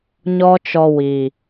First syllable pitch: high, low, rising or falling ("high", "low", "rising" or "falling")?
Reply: high